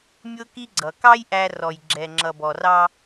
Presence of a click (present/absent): present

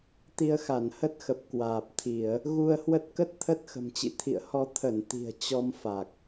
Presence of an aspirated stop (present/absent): present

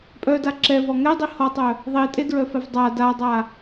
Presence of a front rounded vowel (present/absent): present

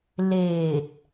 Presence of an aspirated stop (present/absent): absent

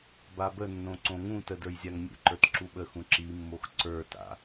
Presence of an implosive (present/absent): present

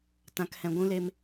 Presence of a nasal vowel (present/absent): present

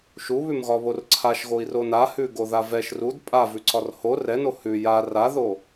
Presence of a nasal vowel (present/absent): absent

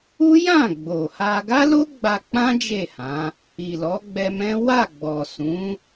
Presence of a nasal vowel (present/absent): present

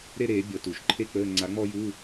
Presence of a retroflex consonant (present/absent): absent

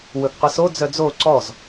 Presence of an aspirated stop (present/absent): absent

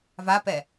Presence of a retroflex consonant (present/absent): absent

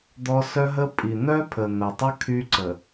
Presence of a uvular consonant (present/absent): absent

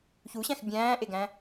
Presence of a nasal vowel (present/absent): present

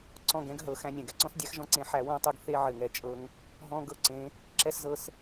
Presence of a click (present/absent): present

